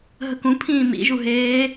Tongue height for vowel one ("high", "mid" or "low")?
mid